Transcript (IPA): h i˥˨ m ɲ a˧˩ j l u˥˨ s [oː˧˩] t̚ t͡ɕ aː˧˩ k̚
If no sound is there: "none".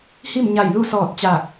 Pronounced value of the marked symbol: ɔː˧˩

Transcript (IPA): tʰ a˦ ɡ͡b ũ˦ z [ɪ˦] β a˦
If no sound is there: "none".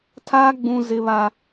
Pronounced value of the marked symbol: ɪ˦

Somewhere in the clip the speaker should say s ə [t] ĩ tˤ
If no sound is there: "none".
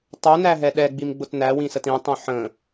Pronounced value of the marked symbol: t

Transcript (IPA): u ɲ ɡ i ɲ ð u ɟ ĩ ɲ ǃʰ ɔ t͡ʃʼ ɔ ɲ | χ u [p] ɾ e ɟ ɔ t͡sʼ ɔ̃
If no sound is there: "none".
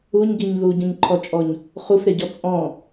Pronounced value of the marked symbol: f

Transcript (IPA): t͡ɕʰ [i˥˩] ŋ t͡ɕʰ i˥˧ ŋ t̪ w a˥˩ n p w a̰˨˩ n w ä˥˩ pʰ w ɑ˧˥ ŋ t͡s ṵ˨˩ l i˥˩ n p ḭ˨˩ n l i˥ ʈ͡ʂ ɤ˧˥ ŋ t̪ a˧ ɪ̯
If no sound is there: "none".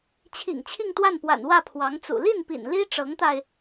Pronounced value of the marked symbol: ḭ˨˩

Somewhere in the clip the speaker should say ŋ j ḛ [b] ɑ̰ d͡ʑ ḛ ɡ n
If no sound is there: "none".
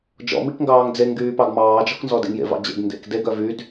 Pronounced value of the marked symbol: v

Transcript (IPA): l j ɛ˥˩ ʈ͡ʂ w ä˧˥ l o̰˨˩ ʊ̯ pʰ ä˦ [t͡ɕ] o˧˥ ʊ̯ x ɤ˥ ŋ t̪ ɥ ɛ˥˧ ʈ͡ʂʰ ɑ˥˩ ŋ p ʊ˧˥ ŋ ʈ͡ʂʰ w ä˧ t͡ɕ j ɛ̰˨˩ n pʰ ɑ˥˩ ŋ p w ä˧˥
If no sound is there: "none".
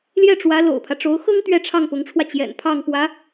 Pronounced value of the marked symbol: ʈ͡ʂ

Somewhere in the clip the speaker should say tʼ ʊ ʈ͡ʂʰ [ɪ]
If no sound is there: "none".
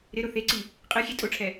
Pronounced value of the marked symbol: ɛ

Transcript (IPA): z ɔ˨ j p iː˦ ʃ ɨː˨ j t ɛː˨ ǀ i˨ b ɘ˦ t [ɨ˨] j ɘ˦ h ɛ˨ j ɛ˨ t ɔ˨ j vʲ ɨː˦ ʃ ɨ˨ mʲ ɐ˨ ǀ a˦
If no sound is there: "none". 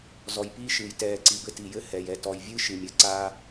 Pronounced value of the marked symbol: i˨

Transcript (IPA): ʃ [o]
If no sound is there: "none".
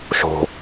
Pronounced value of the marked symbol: o̤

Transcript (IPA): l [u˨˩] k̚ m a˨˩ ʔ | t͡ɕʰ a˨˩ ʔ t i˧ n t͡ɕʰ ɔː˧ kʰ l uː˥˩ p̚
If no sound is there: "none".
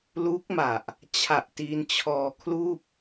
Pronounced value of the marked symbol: u˦˥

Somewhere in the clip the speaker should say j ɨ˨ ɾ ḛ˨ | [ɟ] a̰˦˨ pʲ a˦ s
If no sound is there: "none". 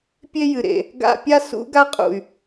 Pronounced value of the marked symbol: ɡ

